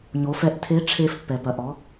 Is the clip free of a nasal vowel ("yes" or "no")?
yes